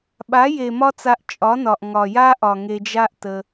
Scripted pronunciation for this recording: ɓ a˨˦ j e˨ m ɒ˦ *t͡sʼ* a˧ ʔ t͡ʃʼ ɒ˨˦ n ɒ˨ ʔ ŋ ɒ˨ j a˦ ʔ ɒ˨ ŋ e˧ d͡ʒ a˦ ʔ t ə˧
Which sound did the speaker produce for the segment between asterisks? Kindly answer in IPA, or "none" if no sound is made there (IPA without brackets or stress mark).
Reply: t͡s